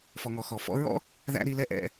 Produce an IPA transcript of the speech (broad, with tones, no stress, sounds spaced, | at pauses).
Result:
f ɔ˧ ŋ ɔ˧ x ɔ˨ f ɔ̰˦ ɹ ɔ̰˦ | ð æ̰˦ ɾ i˧ l ɛ˦ ʔ ɛ̰˧